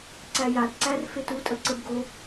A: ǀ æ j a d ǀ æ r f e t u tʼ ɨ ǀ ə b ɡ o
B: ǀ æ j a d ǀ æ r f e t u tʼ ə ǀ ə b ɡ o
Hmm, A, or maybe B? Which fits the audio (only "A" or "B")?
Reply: B